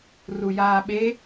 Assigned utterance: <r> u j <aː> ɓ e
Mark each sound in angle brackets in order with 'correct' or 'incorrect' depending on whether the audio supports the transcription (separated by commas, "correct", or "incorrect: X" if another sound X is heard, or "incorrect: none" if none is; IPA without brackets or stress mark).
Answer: correct, correct